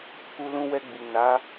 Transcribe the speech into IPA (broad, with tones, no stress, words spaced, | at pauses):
ku˧lũ˧wɛ˧ ɡ͡bi˨ na˨˦